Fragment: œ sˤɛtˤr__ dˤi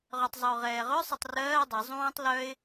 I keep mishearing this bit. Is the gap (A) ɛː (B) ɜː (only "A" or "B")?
B